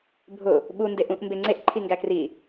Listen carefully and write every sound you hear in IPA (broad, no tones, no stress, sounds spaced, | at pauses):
bʱ ʊ | ɓ u n d e ʔ ũ ʔ m b e ŋ͡ǀ e ʔ ǃʰ i ŋ ɡ æ k r i